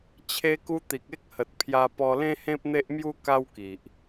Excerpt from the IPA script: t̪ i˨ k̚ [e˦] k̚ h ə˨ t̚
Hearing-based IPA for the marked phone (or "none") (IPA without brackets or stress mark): e˦